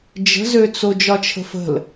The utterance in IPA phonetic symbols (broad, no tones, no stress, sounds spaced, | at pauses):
d͡ʒ ə̤ z ø t͡s o d͡ʒ ɒ t͡ʃʰ ə̤ f ə̤ l